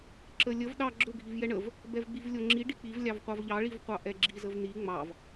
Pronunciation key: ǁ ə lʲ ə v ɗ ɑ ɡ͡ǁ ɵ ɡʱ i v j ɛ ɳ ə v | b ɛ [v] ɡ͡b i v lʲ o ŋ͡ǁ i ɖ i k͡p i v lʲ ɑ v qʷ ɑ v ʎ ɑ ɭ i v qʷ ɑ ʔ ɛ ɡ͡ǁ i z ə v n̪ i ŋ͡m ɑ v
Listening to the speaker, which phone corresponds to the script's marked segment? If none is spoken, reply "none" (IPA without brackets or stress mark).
v